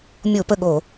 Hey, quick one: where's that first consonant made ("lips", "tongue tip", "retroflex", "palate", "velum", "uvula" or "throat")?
lips